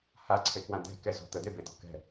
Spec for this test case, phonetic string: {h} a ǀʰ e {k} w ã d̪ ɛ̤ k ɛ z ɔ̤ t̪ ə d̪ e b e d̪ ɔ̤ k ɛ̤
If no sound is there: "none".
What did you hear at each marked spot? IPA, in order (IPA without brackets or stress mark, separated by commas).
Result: h, k